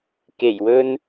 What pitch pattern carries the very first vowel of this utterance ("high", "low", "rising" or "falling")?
low